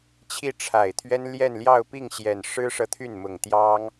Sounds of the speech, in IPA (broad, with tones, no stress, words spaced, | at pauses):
t͡ɕʰi˥˩ʈ͡ʂʰa˨˩ɪ̯t̪ʰɥɛ˥n ljɛ˥˧nljɑ˥˧ʊ̯pi˥˩ŋɕjɛ˨˩n ʂɻ̩˥ʂɤ˨ t̪ʰy˥˩nmʊ˨˩ŋ t̪jɑ˥ŋ